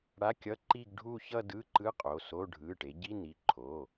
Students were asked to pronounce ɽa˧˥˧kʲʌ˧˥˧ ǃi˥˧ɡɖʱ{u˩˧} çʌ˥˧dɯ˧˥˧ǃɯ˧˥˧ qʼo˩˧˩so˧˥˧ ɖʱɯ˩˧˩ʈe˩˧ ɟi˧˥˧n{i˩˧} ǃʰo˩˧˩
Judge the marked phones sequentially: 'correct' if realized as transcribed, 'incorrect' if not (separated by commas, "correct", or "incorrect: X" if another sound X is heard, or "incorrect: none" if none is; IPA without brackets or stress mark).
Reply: incorrect: u˥˧, incorrect: i˩˧˩